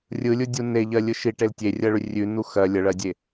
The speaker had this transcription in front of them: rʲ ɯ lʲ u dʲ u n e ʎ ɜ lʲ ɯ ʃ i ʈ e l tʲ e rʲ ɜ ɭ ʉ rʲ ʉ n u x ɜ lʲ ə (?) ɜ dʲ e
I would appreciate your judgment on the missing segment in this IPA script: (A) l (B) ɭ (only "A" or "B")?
B